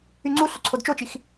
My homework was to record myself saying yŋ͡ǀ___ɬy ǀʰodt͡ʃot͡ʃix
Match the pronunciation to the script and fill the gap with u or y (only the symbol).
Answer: u